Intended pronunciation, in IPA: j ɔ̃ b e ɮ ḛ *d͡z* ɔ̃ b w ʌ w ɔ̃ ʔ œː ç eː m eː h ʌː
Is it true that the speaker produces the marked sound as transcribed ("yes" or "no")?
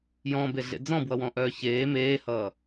yes